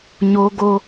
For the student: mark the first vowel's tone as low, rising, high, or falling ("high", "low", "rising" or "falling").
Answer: high